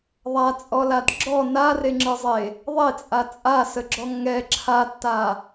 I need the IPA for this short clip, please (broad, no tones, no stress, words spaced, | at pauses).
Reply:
ðˤat͡sʼɔlad ɡ͡ǁɔ nareŋ͡ǁɯzˤe | ðˤet͡sʼa t͡sʼasəɡ͡ǁɔ ŋɛ ǁʰatːa